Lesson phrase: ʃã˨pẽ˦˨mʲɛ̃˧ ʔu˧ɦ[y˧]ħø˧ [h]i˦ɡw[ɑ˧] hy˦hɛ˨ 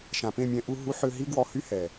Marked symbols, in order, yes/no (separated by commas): no, no, no